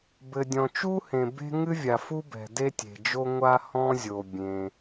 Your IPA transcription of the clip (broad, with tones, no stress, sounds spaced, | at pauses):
b ɘ˩ dʲ ɔ̃˩ t͡ʃ u˥ h ẽ˩ b e̤˥ ŋ ɨ˥ vʲ a˩ f u˥ b ɛ̤˩ d e˥ tʲ e̤˩ d͡ʒ o˥ ŋʷ a˥ h ɔ̃˥ zʲ o˩ bʲ ẽ˩